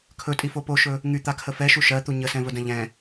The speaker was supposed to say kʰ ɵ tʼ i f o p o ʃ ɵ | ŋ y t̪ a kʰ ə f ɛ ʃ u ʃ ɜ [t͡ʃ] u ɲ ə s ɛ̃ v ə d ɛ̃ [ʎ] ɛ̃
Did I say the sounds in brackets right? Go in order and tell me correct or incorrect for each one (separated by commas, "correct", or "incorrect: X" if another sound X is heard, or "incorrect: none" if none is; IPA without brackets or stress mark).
incorrect: t̪, correct